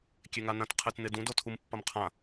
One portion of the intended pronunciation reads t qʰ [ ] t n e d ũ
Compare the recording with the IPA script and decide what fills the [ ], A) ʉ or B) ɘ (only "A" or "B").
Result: B